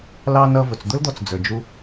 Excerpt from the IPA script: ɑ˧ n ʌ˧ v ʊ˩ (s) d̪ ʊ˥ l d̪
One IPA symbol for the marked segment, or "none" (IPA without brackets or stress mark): t͡s